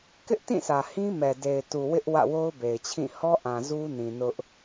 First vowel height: high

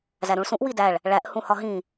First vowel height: low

